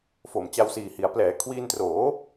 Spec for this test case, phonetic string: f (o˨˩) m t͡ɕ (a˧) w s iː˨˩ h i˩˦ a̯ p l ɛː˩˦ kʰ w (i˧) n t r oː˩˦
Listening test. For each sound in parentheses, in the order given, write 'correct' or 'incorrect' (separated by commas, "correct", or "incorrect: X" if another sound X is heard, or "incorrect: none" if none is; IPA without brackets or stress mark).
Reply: correct, correct, incorrect: iː˧